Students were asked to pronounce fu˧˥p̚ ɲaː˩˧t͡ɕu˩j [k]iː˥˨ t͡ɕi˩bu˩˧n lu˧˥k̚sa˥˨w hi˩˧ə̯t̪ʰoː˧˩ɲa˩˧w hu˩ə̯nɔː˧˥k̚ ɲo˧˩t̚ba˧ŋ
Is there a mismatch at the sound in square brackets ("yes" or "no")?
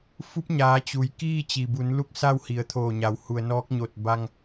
no